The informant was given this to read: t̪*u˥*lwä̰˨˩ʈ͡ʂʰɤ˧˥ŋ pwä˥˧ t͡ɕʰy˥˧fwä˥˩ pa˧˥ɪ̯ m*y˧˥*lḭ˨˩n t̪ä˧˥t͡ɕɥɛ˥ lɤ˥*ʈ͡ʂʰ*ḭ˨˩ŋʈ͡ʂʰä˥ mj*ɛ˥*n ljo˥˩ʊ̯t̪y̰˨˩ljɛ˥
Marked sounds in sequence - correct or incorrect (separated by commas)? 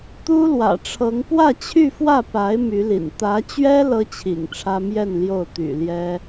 correct, correct, incorrect, incorrect